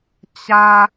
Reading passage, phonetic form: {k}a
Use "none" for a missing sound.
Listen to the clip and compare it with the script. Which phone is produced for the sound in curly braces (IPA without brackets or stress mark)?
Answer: t͡ɕ